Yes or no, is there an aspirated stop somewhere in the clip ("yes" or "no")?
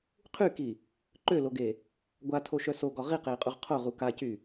yes